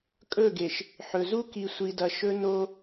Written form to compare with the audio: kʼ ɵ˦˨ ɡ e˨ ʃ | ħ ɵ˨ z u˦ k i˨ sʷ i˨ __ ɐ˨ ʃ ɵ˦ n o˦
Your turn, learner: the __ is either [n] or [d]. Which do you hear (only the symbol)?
d